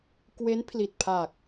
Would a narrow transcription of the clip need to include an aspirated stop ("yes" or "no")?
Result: yes